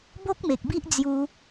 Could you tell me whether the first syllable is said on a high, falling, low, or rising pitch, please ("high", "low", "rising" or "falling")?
high